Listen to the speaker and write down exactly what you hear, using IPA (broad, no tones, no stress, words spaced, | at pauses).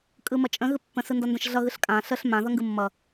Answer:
kʼɯmʌt͡ʃʼə̃ ɣɯpːə̃sɯ ndʌndə̃ʃɮʌɣɯɬ kʼã ɬəɬ mã ðʌŋɡɯmːʌ